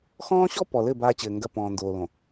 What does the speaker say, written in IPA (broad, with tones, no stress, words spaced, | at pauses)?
xɔ̃ː˦ɕɔ˦ pɔ˨lɘ˦˨ baː˦t͡ɕɘː˨ŋɡɐ˦˨ pɔ̃ː˨ndoː˨lõ˨